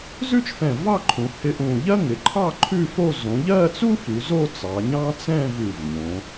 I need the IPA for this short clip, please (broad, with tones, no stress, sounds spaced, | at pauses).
z ʉ˥ t͡ʃ f ɛ̃˧˩ v ɑ˥˧ ǃʰ ũ˩˧ h ɪ˧ ʔ ũ˧˩ ʎ ɜ˥ ŋ ɪ˩˧ ǃʰ ɑ˥˧ ǃʰ ʉ˥˧ f o˥˧ z õ˩˧ ʎ ɜ˥˧ t͡s u˥ f ʉ˩˧ z o˥˧ t͡s ɑ˩˧ ɲ ɑ̃˥ t͡s ɛ̃˥˧ v ʉ˧˩ v ɲ õ˩˧